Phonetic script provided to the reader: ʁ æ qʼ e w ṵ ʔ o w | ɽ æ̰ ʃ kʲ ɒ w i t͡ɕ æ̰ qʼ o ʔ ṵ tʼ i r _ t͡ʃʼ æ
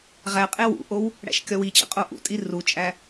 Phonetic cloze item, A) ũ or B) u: B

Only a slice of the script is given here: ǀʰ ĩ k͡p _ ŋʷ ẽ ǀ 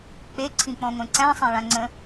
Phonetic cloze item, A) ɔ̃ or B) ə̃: A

